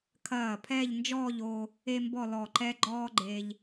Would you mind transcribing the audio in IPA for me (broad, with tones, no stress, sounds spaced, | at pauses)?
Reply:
kʰ ɐː˧˩ pʰ ɛː˥˧ ʎ n d͡ʒ ɔː˥˧ ʎ o˧ | e˥ m b ɔ˥˧ l ɔ˧˩ ǃ ɛ˥ ɡ͡ǃ ɔː˥ ɡ͡ǃ e˧ ʎ